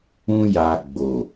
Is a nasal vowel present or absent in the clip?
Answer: present